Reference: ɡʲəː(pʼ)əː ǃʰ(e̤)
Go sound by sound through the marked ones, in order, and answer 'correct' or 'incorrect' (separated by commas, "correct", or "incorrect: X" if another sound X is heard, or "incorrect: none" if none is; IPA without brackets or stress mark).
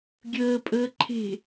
correct, correct